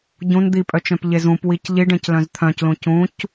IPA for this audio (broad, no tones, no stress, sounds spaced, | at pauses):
ɟ ũ n d̪ i pʼ œ t͡ʃ œ̃ p ʎ e z ũ p w i c ʎ i ɖ ẽ c l œ̃ z t̪ʰ œ̃ c l ũ c ũ c